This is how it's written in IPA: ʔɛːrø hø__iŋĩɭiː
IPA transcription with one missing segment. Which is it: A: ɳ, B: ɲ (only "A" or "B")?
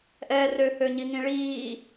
B